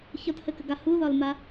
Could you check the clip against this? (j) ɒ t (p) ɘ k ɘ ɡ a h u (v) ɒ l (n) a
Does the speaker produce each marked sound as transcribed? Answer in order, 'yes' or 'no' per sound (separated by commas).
no, no, no, no